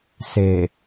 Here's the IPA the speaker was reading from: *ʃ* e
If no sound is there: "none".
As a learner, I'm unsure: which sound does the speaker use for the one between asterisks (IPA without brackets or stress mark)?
s